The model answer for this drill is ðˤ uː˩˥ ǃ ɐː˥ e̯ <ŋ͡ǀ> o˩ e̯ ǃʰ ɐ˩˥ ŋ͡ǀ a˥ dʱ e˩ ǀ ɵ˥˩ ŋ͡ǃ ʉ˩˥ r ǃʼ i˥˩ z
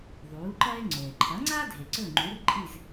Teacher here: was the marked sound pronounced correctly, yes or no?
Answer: yes